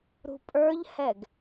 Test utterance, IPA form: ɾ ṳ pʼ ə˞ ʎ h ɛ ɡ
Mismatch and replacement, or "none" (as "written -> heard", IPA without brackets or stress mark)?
none